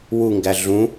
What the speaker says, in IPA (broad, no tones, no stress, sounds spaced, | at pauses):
w u ŋ ɡ æ ɮ ũ